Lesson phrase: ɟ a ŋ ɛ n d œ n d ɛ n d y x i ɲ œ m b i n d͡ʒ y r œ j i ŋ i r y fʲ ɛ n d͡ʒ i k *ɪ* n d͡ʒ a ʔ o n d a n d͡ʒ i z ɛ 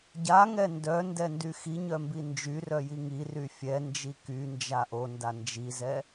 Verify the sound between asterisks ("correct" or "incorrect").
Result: incorrect